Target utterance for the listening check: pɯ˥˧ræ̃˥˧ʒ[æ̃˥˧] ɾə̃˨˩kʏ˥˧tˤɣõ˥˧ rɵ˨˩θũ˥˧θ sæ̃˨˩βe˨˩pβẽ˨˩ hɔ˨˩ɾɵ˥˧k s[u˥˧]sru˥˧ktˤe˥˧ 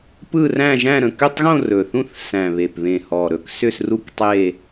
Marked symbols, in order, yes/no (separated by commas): yes, no